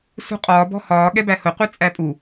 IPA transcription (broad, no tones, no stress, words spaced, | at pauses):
sṳqʼɒː bɔ̤hɒː ɠɛbæhʊ qʷit͡sʼæpʼu